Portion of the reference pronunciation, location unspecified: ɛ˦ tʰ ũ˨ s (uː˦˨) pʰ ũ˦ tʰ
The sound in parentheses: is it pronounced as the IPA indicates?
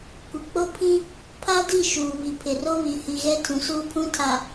no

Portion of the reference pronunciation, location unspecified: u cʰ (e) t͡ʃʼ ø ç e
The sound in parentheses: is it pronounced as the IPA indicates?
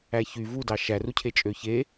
yes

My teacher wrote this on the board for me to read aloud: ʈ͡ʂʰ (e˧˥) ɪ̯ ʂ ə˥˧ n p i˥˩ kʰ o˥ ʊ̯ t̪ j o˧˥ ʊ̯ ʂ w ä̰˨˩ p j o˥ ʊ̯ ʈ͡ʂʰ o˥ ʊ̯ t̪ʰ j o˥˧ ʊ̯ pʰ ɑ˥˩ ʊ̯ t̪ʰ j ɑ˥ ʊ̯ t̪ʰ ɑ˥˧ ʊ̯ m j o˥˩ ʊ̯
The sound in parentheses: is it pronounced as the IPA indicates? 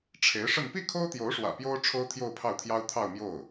yes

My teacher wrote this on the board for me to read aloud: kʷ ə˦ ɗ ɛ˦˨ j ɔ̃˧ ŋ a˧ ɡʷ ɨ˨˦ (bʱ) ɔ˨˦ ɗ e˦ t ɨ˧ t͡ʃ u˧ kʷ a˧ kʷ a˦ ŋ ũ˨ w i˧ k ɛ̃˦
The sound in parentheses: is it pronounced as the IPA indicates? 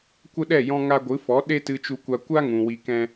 no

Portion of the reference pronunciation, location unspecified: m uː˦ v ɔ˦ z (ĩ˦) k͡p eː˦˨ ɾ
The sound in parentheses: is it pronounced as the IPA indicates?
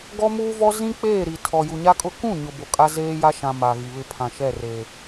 yes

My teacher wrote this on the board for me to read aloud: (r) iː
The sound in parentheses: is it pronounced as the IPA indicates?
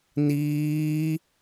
no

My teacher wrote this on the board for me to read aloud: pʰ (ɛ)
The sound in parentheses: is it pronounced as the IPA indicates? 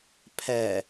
yes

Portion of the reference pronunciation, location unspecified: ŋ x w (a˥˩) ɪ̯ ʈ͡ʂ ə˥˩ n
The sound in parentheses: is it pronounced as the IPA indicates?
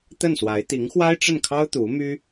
no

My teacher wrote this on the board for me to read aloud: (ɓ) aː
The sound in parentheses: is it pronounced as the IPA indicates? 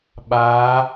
yes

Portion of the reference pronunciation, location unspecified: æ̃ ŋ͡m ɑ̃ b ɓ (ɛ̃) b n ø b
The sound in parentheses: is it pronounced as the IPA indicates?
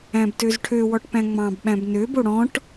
no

